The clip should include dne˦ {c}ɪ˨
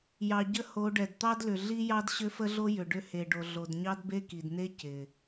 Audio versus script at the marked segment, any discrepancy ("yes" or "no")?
no